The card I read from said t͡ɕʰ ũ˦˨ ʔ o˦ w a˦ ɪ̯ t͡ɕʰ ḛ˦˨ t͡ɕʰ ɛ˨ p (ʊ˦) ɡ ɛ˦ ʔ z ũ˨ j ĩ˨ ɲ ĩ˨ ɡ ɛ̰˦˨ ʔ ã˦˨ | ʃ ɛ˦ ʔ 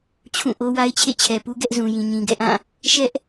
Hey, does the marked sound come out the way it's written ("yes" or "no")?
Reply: no